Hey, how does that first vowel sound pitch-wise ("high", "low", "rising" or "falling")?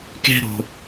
high